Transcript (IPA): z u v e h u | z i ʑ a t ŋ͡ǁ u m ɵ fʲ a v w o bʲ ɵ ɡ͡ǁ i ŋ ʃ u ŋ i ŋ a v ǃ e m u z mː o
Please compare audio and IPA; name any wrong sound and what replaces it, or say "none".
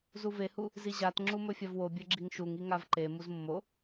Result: none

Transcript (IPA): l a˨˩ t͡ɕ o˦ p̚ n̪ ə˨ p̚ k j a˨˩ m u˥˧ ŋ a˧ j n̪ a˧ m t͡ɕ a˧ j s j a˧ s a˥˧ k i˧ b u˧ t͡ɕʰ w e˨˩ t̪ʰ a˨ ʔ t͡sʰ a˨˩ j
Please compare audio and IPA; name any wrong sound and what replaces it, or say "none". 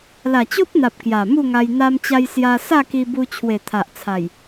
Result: ə˨ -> a˨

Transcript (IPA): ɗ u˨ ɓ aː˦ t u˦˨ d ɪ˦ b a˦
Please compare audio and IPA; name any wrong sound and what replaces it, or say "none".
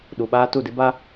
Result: none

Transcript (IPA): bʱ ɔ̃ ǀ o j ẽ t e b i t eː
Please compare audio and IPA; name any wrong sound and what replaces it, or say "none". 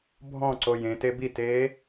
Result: none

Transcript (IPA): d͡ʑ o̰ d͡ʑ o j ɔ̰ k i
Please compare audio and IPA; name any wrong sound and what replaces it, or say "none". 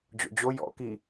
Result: none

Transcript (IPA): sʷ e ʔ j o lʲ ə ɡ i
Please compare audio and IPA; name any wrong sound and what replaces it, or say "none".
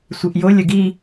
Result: none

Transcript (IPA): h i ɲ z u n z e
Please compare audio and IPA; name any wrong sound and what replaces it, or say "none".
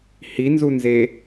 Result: ɲ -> n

